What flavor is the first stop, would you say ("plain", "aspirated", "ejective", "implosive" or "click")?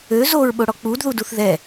implosive